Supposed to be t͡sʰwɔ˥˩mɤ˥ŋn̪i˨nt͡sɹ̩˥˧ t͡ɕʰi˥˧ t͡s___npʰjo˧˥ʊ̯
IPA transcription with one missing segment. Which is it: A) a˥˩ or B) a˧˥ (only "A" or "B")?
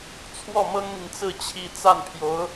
A